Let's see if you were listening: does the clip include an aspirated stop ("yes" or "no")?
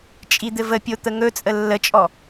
no